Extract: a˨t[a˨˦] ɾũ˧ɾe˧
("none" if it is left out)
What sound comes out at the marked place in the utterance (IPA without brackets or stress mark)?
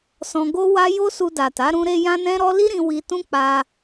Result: a˨˦